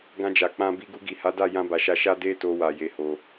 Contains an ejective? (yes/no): no